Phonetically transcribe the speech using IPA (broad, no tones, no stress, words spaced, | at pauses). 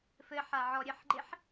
fɘħa ʕɔɾʲɘħɡ͡ǃeħ